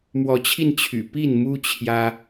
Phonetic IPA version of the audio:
m w ɔ˨˦ t͡ɕʰ i˧ n t͡ɕʰ y̰˨˩ p i˥˨ n m u˦ t͡ɕʰ j ä˦

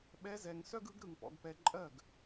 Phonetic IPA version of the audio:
ɓ ɛ˧˥ z ɛ˨ ŋ s œ˥ ɡ ɯ˧˥ ɡ ɾ ɯ˨ ŋ p ɔ̰˨ ɡ p ɛ˨ ǃʼ ɜ˥˩ ɡ

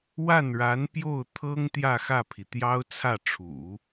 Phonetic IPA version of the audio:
w a˥˩ n ɻ a˧˥ n p j o˥˩ ʊ̯ t̪ʰ ɤ˥ ŋ t̪ j ä˥˧ x ä˥˩ pʰ i˩ t̪ j ɑ˥ ʊ̯ t͡sʰ ä˥˩ ʈ͡ʂʰ ṵ˨˩˦

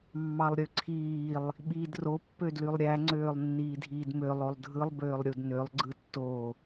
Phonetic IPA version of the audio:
mː ɑ lˠ ɾʲ ø ǀʰ iː lˠ | ɓ iː d r o pː ø d l y lˠ ɾʲ æ ŋ͡ǀ øː lˠ nː iː dʱ iː d m ø lˠ o lˠ dʱ ɯ lˠ b øː lˠ ɾʲ u d n ø lˠ ɡ͡ǀ ɯ tː o

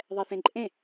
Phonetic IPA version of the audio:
ðˤ ɛ θ ẽ ǃʼ ẽ

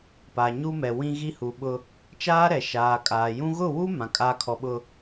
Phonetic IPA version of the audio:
p a˨ ɲ u˦ m ɛ˨ w ĩ˦ ɣ i˦ h u˨ ɓ ʊ˦ | t͡ʃ aː˦ ɾ ɛ˨ ʃ aː˨ kʼ aː˨ j ũ˦ ɣ ʊ˦˨ w u˦ m ã˨ kʼ aː˦ kʰ ɔ˨ ɓ ʊ˨

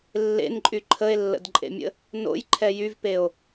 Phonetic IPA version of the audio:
lː ḛ n ǃʼ y ǃʰ ə e̯ lː ə̰ d ǃʼ ḛ mʲ ə̰ | n o̰ j ǃʰ ɛ j y v p e o̯

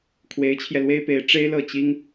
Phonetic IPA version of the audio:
kʰ w e˧˥ ɪ̯ t͡ɕʰ j ɛ˧ l w e˥ ɪ̯ p e˧˥ ɪ̯ ʈ͡ʂ e˥ ɪ̯ l ɤ˥˩ t͡ɕ i˥ ŋ

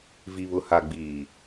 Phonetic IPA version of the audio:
v i˨ β ʊ˨ h a˨ ɡ͡b iː˨

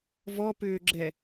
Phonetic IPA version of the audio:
v ɔ p ʏː ɡ͡ǁ ɛ

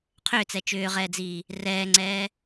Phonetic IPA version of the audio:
qʰ ʏː t͡s ɛ t͡ʃ ʏː ʁ ɛː d͡z iː | r ɛː ŋ͡ǀ ɛː

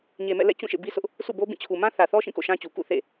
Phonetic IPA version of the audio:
ɲ e˨ m ɛ̰˦˨ l ɛ̰˦˨ t͡ɕ ũ˦˨ ʃ ḛ˦˨ b i˦ s ʊ˦ ʔ | sʰ ṵ˦˨ b o˦ b ĩ˦˨ t͡ɕʰ u˨ m ã˦ θ ä˨ θ ɔ˦ ʃ ĩ˦˨ k o̰˦˨ ʃ ã˦ t͡ɕ u˨ k ṵ˦˨ θ ḛ˦˨

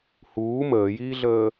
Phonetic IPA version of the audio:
h uː m əː j iː ɮ əː

